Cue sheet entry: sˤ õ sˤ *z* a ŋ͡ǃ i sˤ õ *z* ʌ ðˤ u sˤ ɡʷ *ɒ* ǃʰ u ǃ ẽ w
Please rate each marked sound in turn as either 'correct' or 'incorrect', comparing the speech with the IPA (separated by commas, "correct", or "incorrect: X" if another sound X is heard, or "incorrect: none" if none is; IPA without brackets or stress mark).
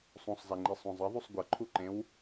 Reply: correct, incorrect: zˤ, incorrect: ʌ